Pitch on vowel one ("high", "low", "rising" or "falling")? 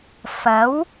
rising